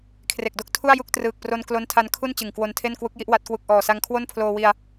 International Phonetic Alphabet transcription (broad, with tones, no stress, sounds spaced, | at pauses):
kʰ r e˨˩ k̚ d o˥˩ k̚ tʰ u˥˩ a̯ j u˥˩ k̚ t r ɯː˨˩ k̚ p r o˧ n k l o˦˥ n tʰ a˧ n kʰ u˥˩ n t͡ɕ ɯ˨˩ ŋ k w o˧ n tʰ e˥˩ n k w u˦˥ k̚ j i˦˥ ʔ w a˦˥ t̚ k w u˨˩ k̚ ʔ ɔː˨˩ s a˧ ŋ kʰ w o˥˩ n pʰ l oː˧ w i˧ a̯